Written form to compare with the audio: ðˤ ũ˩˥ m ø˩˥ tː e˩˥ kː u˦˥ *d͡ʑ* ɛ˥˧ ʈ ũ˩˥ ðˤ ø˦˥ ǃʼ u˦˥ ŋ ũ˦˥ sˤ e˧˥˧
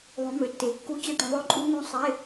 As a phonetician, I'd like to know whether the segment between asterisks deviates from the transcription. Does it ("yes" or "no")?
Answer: yes